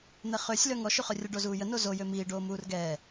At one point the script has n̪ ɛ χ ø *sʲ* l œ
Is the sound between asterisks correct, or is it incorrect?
correct